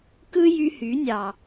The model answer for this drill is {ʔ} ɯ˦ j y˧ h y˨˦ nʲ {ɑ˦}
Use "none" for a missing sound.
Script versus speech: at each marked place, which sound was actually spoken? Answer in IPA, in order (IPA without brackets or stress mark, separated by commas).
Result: k, ɑ˨